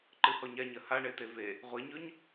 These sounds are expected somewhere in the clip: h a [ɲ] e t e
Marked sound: incorrect: ɳ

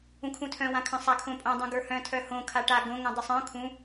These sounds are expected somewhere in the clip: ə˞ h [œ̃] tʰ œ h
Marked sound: correct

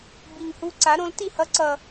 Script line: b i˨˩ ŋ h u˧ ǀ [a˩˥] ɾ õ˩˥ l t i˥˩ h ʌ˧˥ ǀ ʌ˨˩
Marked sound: correct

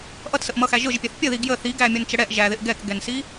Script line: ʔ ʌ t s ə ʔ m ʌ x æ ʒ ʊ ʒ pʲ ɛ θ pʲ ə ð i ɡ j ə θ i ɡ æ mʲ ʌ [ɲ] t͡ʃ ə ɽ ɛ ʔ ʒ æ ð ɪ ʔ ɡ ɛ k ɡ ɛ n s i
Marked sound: incorrect: n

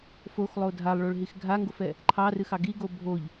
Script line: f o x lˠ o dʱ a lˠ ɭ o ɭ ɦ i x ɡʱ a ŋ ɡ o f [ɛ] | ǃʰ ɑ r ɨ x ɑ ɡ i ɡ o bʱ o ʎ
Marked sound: correct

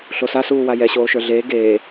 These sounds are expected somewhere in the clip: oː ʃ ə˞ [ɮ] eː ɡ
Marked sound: correct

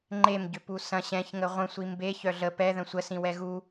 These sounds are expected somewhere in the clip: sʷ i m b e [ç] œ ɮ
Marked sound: correct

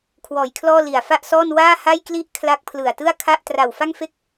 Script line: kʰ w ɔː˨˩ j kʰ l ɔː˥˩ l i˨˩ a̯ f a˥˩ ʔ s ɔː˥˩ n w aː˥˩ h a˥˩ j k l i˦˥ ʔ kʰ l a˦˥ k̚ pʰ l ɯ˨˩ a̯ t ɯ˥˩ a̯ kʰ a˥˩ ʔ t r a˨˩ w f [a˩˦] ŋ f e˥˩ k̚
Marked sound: incorrect: a˥˩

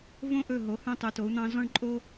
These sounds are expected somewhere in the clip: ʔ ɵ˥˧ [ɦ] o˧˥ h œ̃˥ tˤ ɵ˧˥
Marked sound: correct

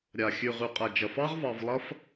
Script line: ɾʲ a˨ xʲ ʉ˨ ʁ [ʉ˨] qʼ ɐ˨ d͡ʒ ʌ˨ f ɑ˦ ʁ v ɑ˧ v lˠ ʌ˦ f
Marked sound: correct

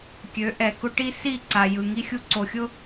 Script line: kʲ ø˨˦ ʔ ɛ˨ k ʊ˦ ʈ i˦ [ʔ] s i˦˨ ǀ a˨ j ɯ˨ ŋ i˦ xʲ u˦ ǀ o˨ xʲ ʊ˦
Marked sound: incorrect: none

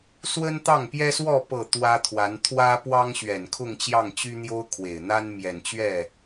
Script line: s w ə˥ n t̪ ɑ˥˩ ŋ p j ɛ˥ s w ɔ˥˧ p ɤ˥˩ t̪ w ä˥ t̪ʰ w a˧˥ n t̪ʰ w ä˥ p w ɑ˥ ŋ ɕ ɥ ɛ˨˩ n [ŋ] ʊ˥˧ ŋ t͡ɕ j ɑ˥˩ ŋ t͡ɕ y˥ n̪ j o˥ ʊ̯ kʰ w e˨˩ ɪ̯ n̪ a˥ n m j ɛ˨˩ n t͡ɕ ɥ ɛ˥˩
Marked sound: incorrect: kʰ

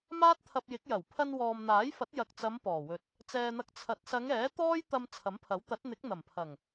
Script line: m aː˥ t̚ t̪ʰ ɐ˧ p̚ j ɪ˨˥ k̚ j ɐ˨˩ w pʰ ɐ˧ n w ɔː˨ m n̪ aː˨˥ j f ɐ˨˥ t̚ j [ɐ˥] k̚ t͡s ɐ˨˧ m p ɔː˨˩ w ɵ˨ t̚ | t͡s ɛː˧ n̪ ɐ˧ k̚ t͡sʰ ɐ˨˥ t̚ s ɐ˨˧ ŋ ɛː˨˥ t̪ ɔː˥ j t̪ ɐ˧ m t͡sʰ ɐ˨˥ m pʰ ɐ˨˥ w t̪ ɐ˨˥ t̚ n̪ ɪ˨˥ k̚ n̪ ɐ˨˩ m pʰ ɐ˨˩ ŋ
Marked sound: incorrect: ɐ˨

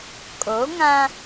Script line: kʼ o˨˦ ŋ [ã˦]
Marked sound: correct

